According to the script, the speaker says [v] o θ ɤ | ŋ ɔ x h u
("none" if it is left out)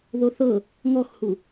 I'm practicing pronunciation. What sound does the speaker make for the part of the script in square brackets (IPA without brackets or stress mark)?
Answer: ð